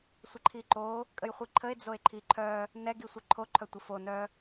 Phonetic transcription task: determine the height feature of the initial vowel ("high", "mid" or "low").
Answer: mid